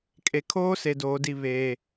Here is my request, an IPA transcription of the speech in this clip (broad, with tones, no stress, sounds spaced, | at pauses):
kʼ e˨ kʰ oː˦ s e˨ d oː˨ d i˦˨ β eː˨